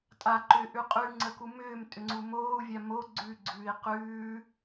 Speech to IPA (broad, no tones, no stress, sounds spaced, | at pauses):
tʼ a ǃ ʏː ʔ ʉ qʼ ʉ ŋ͡ǀ ə k u m ʏː m tʼ ʏ ŋ͡ǀ u m oː u̯ vʲ a m o ɡ͡ǀ ʉ ɡ͡ǀ ʉː i̯ q ʉː